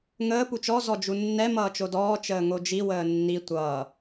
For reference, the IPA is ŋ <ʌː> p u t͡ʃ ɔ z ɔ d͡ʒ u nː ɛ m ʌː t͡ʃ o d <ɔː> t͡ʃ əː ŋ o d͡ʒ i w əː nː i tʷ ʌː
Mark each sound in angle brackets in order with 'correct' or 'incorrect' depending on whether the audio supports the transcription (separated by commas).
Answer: incorrect, correct